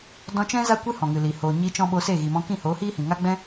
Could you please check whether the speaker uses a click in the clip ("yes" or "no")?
no